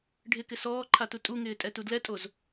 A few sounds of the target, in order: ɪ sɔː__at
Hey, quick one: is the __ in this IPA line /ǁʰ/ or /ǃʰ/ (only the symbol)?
ǃʰ